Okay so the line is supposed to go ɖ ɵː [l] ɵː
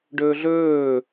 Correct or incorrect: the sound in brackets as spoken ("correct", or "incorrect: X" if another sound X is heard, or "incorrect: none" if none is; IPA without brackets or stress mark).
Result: incorrect: ɮ